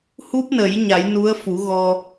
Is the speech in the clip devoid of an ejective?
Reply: yes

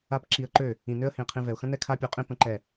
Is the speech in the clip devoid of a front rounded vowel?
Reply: no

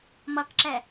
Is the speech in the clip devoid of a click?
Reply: no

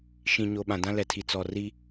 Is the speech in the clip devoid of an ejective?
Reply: yes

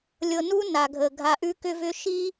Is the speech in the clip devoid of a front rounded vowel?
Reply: no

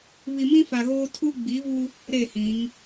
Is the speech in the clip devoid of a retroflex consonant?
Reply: yes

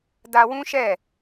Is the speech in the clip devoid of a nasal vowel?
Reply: no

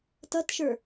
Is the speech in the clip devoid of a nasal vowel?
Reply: yes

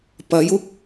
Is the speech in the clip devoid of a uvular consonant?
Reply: yes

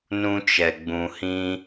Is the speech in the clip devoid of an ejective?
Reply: yes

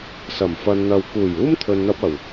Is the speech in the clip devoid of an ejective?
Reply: yes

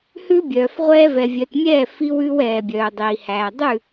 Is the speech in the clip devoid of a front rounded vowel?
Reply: no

